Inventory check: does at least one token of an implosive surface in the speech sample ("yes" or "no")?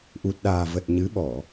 yes